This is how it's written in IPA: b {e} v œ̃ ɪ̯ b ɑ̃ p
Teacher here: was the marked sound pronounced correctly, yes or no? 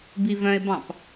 no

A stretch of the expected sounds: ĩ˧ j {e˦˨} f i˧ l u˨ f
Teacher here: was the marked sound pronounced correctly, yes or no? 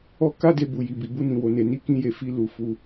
no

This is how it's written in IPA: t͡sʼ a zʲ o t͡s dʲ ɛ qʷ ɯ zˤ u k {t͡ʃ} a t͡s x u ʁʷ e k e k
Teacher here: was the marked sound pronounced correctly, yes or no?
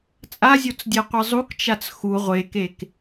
yes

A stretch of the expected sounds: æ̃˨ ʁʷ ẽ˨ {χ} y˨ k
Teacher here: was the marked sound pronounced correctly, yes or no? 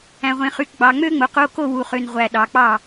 yes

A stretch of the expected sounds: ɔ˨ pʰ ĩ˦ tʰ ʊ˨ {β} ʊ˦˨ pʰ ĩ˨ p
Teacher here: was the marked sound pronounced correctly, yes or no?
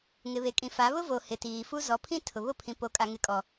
yes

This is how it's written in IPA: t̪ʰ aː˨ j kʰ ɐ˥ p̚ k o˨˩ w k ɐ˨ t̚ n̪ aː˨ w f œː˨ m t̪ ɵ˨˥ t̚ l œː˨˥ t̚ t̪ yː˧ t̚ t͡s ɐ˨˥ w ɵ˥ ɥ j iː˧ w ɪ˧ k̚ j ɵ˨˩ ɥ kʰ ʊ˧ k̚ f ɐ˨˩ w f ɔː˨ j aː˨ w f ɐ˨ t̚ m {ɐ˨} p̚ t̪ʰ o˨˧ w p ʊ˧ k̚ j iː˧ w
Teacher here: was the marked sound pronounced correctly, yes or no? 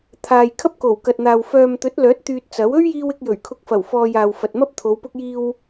no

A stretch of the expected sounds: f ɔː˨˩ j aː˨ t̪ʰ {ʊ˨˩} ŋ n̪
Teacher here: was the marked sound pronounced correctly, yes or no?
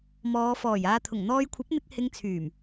yes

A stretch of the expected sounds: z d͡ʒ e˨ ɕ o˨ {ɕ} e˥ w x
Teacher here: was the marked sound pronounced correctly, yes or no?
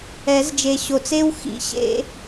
no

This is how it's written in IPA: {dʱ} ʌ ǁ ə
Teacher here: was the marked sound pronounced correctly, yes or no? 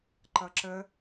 no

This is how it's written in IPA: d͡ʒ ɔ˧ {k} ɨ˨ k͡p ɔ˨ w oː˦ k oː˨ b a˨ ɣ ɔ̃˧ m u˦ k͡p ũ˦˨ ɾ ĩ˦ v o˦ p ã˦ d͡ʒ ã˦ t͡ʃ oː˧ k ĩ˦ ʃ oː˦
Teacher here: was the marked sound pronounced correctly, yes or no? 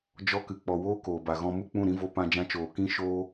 yes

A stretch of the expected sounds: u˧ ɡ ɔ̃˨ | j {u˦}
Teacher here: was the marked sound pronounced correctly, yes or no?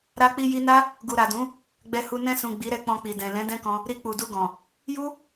yes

